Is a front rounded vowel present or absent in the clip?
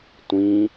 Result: absent